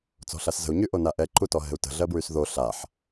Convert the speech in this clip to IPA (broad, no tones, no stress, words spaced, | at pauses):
t͡sɔ̤ɬaszə̤u̯ ɲyʔonaʔɛ ǃutɔɦɛ̤u̯tə̤ ɮɜbɹysðo ɬaħ